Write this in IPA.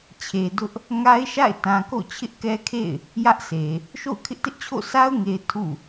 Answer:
t͡ɕʰ e˨ d ʊ˦ ʔ | ŋ a˦ ɪ̯ ʃ a̰˦˨ ɪ̯ t ã˨ k o̰˦˨ t͡ɕʰ ɪ˦ ʔ k ɛ˦ kʰ ḛ˦˨ ɪ̯ | j ä˦ ʔ sʰ e˨ | ʃ o̰˦˨ ʊ̯ kʰ ɪ˦ ʔ t ɪ˦ ʔ t͡ɕʰ o̰˦˨ sʰ a˦ ʊ̯ ŋ e˨ ɪ̯ tʰ ṵ˦˨

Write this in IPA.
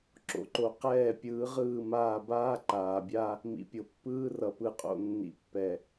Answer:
ǁ o̰˨ ǃ o˨ q ɛː˦˨ pʲ ɯː˨˦ ʁ ɯː˦˨ m aː˦˨ b aː˦ ǃ aː˨ bʲ a˦ | m ḭ˨ pʲ o˨ pː ɯː˦ r ʌ˨ p ɯ˨ qʼ o̰˨ nː ḭ˨ pː ɛ˨

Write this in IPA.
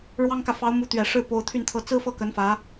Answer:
ɻ w ɑ˥ ŋ k ä˨ f ɑ˧˥ ʊ̯ m u˧˥ t̪ ɥ ɛ˨˩ ʂ ɻ̩˥˩ p o˧˥ ʊ̯ t̪ʰ y˥˧ n t̪ʰ ɤ˥˩ t͡s ɹ̩˥ f ɤ˥˩ k ə˧˥ n f ä˧˥

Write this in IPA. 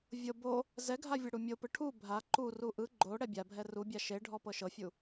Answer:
vʲ ɤ b o | z ɛ ɡʱ a vʲ ɛ ɽ u mʲ o p ɯ ʈʰ u bʱ a ǃ u r u ʔ ɯ ɡ͡ǃ o ɽ ɛ bʲ a bʱ ɛ r u bʲ a ʃ e ɖʱ ɔ p ɤ ʃ ɤ fʲ u

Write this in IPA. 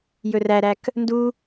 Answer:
j ɵ r æ ɾ æ k | n d u

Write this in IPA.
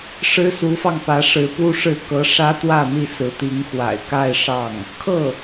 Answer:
ʂ ɻ̩˥ s u˧˥ f ɑ˧ ŋ p ä˧˥ ʂ ɻ̩˧˥ p u˥ ʂ ɻ̩˥˩ k ɤ˧˥ ʂ ä˥ t̪ w ä˥˧ n̪ i˥˩ s ɹ̩˧˥ t̪ i˧˥ ŋ x w a̰˨˩ ɪ̯ k a˥˧ ɪ̯ ʂ ɑ˥˩ ŋ | kʰ ɤ˥˩

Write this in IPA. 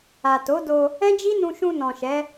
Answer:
a˨ t o˨˦ d o˧ | ɛ̃˦ d͡ʒ i˦ n ũ˧ ʃ ũ˧ n ɔ̃˨ ʃ ɛ˨˦

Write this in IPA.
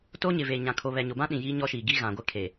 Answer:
t o˦ ɲ ɪ˨ v eː˨ ɲ ã˨ kʰ o˨ β ɛ˨ ɲ o˨ b ã˦ ɗ ĩ˨ j iː˦ ɲ ɔ˦ ʃ iː˨ ɡ i˦ ɣ ã˨ ɡʷ ɪ˦ kʰ e˨

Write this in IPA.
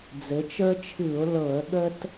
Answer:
d͡z ɘ˩˧ t͡ʃ ə˞˦ t͡ʃʰ ɨ˧˩˧ ʊ̯ l ɤ˧˩˧ ə̯ ɠ ə˦ t

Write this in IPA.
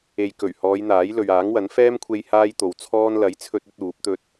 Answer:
e˨ j k ɵ˨˩ ɥ h ɔː˨˧ j n̪ aː˨˥ j l ɵ˨ ɥ aː˨˥ ŋ w ɐ˨˥ n f ɛː˥ m kʷʰ e˧ j h aː˥ j t̪ o˨ w t͡sʰ ɔː˥ n l ɐ˨˥ j t͡sʰ ɵ˧ t̚ ɵ˥ t̚ uː˨˥ p̚ t̪ ɵ˥ t̚

